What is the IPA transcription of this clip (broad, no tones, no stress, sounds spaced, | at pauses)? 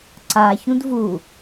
ǀ a ç ũ d v u